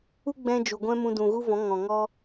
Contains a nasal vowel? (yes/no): yes